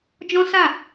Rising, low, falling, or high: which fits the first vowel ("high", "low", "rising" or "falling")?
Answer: high